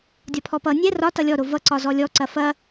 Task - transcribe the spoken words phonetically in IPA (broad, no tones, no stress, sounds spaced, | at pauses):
dʲ ɒ pʰ ɔ p ʌ nʲ ɛ r ɒ t ʌ lʲ ɔ ɾ o v ʌ ǀ ɒ z ɔ lʲ ɔ ǀ ɐ f ɐ